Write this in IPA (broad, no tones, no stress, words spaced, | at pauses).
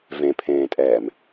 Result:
vẽpʰẽːtʼɛːm